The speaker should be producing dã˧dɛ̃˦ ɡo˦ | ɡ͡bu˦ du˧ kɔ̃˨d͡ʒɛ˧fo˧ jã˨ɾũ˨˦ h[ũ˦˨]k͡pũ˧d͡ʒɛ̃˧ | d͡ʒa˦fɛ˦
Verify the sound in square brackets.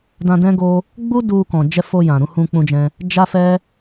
incorrect: ũ˧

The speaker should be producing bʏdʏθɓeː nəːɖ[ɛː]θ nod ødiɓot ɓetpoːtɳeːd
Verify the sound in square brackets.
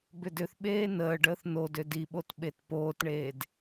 incorrect: əː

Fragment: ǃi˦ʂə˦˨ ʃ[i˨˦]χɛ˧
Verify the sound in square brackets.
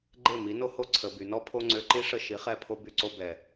correct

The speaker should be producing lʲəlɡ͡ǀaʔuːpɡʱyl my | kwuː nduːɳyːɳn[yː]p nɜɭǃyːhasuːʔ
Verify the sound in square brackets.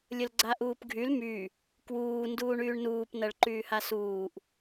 incorrect: uː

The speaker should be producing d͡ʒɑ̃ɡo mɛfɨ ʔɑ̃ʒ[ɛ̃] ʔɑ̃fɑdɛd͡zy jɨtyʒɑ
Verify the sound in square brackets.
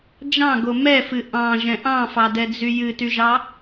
correct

